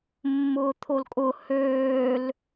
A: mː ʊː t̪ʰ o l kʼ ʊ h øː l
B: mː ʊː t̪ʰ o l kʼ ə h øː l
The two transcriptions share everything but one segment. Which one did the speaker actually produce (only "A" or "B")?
A